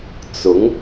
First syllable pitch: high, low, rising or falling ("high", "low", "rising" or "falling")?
rising